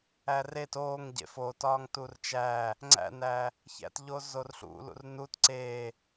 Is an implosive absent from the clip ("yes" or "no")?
yes